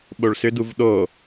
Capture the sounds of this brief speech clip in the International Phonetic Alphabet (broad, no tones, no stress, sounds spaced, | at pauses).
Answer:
ɓ o ɭ s ʏ d u v ɗ o